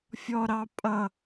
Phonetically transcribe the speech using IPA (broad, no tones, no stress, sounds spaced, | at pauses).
fʲ ɔ ɾ ɑ pʼ ʌ